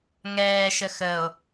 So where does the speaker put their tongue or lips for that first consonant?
velum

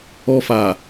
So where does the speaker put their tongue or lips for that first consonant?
lips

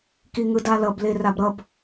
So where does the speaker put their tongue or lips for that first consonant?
velum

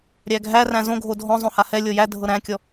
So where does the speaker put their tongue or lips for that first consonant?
tongue tip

